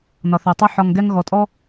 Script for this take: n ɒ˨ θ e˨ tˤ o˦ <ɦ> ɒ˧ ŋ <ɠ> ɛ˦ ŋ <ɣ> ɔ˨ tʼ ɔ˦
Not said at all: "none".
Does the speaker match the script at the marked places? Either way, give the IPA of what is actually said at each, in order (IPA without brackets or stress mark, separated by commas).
ħ, ɡ, ɣ